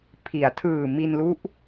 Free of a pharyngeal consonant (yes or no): yes